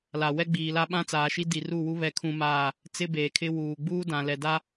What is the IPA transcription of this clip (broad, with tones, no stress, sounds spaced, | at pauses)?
l a˨ w ɛ˦ ɡ͡b iː˨ l a˦ ɓ ã˦ t͡s aː˨ ʃ i˦ d i˨ r u˦˨ w u˦ β ɛ˦ kʰ ũ˦ m aː˦˨ | t͡s ɪ˦ b eː˨ kʰ ɪ˦ w uː˨ ɡ͡b uː˦ d ã˨ l ɛ˨ d a˦